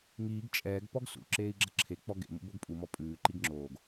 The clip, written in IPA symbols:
ŋiːɡ t͡ʃʼɛːɡ pɔɡsṵ ǁeːi̯ɡ͡ǁʌǁʰe k͡pɔɡḛ mṵboɡpʼumɔ pʼʉːǃiɡ ŋ͡ǁoːɡ

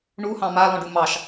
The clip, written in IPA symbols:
ɳuhɑ̃ malɔ̃ɖu mɑʃ

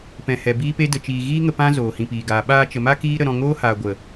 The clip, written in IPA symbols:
pɛ̃˨hɛ˨ biː˦pe˦də˧t͡ʃiː˧ ɣiː˦ŋə˧ pã˦ zoː˨hĩ˨piː˨ɡaː˨ ɓaː˧t͡ʃə˨ma˦ kiː˦ ɾə˧ɾɔ̃˧ ŋoː˦haː˨ ɡʷə˨

